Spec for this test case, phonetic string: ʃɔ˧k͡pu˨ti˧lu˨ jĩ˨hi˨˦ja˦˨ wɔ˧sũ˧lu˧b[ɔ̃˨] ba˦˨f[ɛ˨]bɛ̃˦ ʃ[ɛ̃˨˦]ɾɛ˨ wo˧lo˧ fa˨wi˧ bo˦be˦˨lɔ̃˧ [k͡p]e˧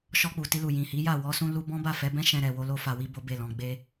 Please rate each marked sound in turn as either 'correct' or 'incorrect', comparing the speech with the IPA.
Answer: incorrect: ɔ̃˦, incorrect: ɛ˨˦, incorrect: ɛ̃˧, incorrect: ɡ͡b

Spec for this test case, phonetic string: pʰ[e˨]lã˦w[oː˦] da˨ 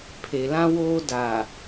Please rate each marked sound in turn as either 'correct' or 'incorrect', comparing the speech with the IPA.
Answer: correct, correct

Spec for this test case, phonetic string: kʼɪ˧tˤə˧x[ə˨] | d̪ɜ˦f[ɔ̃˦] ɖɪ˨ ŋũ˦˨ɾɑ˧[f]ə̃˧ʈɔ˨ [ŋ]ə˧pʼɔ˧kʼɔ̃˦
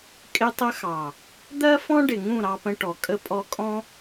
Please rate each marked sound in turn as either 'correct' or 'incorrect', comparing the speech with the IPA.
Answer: incorrect: ɑ˨, correct, incorrect: p, incorrect: kʼ

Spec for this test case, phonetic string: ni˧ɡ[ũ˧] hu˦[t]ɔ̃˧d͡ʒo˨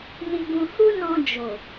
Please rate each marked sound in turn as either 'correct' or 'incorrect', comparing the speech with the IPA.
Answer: correct, incorrect: n

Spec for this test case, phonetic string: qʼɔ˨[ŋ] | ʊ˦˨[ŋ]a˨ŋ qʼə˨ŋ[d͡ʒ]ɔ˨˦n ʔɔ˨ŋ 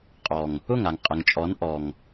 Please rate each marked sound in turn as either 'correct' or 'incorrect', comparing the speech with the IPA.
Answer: correct, correct, incorrect: t͡ʃʼ

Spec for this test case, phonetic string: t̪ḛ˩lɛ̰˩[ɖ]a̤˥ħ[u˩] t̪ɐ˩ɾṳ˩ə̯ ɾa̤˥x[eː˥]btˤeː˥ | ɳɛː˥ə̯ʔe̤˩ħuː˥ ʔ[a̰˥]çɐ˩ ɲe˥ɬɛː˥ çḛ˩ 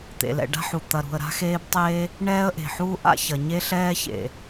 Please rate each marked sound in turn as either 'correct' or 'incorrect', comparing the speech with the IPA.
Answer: correct, correct, correct, correct

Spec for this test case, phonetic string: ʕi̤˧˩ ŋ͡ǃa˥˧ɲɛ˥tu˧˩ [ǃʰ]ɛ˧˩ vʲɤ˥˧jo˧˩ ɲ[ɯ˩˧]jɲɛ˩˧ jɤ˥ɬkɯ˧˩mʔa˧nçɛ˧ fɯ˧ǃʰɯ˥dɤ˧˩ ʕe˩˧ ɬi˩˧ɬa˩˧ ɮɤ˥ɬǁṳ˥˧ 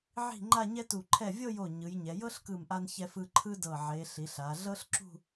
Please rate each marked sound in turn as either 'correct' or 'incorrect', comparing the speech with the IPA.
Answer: correct, correct

